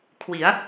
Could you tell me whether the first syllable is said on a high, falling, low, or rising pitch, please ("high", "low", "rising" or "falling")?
rising